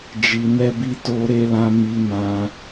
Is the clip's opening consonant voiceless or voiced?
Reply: voiced